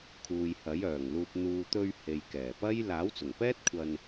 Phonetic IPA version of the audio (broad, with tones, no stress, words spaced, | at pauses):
kʰuː˨jhɐ˨˥jœː˨˩ŋ luː˨p̚n̪uː˨t̪ɵ˧ɥ he˨jkɛː˨˩pɐ˥j laː˨˥wt͡sʊ˨˩ŋpɛː˥t̚kʷʰɐ˧n